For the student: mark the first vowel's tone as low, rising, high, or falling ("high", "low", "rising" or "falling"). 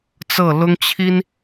falling